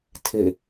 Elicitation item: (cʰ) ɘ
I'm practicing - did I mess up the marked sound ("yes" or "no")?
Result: yes